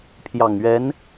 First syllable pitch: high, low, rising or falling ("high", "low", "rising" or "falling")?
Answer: low